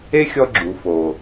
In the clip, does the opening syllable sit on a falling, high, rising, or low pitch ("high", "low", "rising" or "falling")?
high